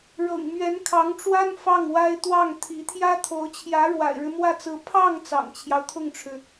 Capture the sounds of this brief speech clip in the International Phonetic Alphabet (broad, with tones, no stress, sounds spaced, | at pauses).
ɻ ɤ̰˨˩ ŋ m ɥ ɛ˧˥ n kʰ ɑ˧˥ ŋ ʈ͡ʂ w a˥ n f ɑ˥˩ ŋ w a˥ ɪ̯ t̪ w ɑ˥˩ ŋ t̪ʰ i˧˥ t̪ʰ j ä˥ t̪ʰ o˧˥ ʊ̯ t͡ɕʰ j ä˧˥ ɻ w a̰˨˩ ɪ̯ ɻ ɻ̩˦ m w ä˥˩ t͡s ɹ̩˧˥ pʰ ɑ˥˩ ŋ t͡s ɑ̰˨˩ ŋ t͡ɕʰ j ɑ˦ ʊ̯ t̪ʰ ʊ˥˩ ŋ ʈ͡ʂʰ ɻ̩˩